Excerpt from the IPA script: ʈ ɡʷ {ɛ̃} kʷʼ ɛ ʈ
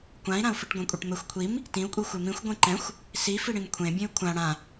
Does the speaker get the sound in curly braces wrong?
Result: yes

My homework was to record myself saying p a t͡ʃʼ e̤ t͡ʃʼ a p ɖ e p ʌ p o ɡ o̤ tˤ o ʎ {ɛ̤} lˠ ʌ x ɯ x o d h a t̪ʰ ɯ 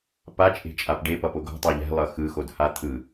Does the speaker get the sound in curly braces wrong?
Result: no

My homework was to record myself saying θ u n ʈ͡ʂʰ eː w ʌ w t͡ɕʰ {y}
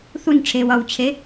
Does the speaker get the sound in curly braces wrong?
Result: yes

